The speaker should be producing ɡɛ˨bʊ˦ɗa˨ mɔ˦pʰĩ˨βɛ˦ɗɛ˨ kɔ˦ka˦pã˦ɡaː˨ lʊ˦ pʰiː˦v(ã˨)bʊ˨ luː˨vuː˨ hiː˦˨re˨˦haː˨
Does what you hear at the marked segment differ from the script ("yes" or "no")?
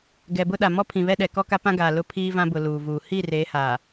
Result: yes